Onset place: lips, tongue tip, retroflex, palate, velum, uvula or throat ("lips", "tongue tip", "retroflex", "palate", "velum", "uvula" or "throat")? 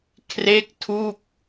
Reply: velum